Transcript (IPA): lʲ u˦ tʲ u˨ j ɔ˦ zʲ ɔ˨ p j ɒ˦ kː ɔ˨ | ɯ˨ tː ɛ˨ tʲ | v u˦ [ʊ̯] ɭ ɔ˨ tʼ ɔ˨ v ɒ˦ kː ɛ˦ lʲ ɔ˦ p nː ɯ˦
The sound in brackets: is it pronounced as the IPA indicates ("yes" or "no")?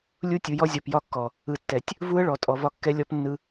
no